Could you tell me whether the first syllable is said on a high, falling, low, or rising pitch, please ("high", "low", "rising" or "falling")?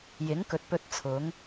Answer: rising